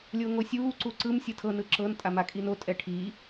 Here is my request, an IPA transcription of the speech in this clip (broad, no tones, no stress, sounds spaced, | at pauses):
lʲ o ŋ o sʲ uː ǀ u ǀ ɯ m sʲ ɯ tʰ ɤ n ɯ ǁ ɤ n tʼ a m a kʼ i n o tʼ ɛ ʈʰ i